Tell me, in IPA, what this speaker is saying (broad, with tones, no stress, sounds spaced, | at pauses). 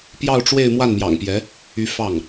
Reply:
p j ɑ˥˧ ʊ̯ ʈ͡ʂ w e˥˧ ɪ̯ m w a˥˩ n m j ɑ̰˨˩ ŋ p j ɛ˧˥ | y˧˥ f ɑ˥˩ ŋ